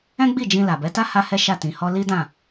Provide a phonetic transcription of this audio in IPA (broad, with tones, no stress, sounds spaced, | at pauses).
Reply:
ɛ̃˦ ɡ͡b i˦˨ d͡ʒ ĩ˧ l a˨ b ɛ˨˦ t a˦ h a˦ h ɛ˦ ʃ a˦˨ t ĩ˨ h ɔ˧ l i˦ d ã˦˨